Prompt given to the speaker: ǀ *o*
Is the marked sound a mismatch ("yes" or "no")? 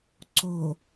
no